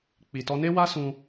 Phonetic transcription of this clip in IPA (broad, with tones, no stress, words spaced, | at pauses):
k͡pi˨tɔ˧ne˦ wa˦sũ˧